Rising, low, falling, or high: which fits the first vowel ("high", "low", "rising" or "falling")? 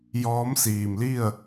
rising